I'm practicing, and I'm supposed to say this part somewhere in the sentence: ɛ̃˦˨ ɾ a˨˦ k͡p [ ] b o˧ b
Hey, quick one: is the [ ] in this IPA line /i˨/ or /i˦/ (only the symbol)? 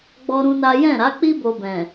i˦